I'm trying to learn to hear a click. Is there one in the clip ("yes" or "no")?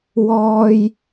no